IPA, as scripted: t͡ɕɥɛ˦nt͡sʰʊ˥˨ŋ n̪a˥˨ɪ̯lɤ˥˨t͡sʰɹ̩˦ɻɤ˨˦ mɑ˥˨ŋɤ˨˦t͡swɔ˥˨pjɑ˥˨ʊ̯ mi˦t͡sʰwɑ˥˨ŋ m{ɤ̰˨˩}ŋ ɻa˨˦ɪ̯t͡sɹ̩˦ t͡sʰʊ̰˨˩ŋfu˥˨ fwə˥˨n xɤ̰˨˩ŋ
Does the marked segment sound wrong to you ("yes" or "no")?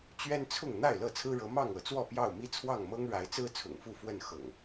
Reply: yes